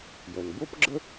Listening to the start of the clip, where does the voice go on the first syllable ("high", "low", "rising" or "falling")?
low